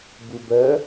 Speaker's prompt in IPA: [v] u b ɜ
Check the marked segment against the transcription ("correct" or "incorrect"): incorrect